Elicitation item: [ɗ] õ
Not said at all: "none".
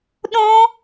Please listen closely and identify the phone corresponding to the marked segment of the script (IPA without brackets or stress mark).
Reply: ɗ